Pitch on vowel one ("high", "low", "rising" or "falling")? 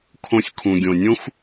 low